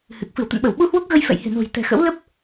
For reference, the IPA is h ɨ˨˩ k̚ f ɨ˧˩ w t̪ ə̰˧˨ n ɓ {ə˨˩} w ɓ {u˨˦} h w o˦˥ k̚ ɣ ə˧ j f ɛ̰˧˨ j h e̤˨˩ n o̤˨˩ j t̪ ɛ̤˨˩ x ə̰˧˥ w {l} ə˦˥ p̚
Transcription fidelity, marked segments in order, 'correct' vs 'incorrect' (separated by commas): incorrect, incorrect, correct